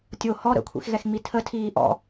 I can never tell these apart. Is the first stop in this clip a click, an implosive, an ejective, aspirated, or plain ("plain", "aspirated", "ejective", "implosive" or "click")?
plain